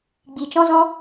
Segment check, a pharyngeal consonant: absent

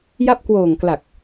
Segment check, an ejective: absent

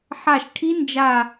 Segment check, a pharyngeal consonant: present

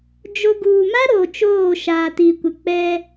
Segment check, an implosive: absent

